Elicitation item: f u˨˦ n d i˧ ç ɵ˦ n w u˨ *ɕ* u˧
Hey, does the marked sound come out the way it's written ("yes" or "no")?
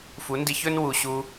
yes